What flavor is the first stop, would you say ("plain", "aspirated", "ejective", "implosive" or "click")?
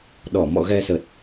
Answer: implosive